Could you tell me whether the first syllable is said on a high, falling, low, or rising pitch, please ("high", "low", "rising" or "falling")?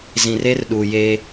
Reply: low